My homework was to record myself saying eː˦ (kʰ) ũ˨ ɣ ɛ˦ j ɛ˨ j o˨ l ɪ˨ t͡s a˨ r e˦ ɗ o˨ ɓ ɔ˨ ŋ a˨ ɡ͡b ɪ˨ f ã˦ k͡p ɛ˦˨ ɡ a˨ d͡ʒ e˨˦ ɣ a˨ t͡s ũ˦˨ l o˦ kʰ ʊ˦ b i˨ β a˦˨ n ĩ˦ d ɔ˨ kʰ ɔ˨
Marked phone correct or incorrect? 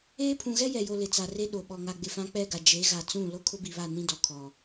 incorrect